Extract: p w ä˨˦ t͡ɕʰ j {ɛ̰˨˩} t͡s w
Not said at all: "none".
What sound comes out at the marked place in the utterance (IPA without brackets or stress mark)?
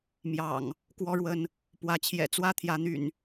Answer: ɛ̰˨˩